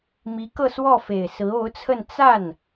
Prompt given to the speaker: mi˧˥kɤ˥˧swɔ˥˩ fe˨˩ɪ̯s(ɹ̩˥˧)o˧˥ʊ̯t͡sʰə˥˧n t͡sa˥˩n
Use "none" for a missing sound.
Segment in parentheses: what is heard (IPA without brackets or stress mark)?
ɹ̩˧˥